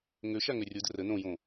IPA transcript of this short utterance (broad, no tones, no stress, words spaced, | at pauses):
ŋøʃa ŋørʲo dərə nõjõ